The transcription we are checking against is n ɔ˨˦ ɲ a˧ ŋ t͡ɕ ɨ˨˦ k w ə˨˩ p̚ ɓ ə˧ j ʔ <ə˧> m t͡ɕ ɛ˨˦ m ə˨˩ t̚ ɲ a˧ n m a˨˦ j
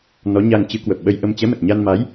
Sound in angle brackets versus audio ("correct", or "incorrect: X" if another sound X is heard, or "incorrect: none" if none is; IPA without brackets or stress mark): correct